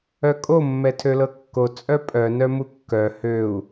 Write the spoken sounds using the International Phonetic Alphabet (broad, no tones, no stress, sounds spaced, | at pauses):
œ kʼ o mː ɛ tʰ ø l ɤ kː o t͡sʼ œ pʼ œ n œ m u kː œ h ø u̯